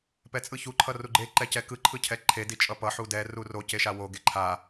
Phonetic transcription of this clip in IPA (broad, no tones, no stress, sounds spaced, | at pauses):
p ɛ t͡sʼ ɯ ç u ǃʰ ʌ r u ɡ͡ǃ e ǃ ɛ c ɛ k ɯ ǃʰ ɯ cʰ ɛ ǃʰ e d i t͡ʃʼ ʌ p ʌ ħ u d ɛ r u r o c e ʃ a w o ɡ e ǃʰ a